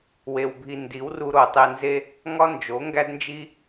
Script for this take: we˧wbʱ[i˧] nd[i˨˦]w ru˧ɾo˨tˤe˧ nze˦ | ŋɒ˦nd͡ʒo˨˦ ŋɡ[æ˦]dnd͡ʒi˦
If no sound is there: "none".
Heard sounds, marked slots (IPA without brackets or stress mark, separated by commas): i˧, i˨˦, æ˦